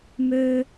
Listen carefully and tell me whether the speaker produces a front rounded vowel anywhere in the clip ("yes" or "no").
yes